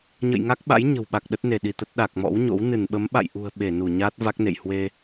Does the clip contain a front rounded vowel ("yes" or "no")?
no